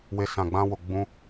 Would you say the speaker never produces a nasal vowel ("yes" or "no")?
no